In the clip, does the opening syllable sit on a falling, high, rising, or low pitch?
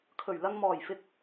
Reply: low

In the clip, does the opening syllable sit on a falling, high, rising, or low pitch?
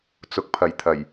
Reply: rising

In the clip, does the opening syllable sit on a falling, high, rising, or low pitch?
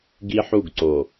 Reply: high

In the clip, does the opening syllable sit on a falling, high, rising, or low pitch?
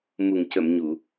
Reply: low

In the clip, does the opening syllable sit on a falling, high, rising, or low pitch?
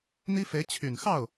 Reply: high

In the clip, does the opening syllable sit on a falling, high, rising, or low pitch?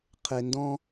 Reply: low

